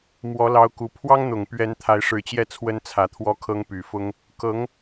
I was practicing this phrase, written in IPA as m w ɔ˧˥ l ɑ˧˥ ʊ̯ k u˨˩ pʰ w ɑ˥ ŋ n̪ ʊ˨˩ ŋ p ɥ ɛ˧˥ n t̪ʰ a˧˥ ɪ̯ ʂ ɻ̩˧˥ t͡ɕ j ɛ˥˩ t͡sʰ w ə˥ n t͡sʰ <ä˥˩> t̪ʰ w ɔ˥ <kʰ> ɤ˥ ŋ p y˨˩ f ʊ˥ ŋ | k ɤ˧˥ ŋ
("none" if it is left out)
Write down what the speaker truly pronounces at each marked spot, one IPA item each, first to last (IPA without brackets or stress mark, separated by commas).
ä˧˥, kʰ